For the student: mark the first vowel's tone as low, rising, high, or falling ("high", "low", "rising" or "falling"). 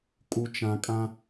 low